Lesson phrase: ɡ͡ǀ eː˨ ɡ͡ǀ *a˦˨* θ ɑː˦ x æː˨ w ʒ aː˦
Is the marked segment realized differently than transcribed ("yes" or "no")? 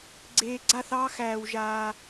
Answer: no